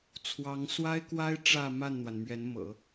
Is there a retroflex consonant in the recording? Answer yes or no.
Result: yes